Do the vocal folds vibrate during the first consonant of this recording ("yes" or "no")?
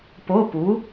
no